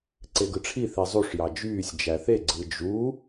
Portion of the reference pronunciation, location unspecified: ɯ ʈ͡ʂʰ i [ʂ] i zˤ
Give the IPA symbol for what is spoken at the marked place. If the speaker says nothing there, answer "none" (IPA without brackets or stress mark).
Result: θ